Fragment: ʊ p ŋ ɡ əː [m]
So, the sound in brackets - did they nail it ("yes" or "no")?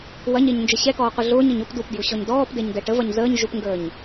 no